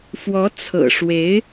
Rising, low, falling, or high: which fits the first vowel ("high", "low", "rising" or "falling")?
rising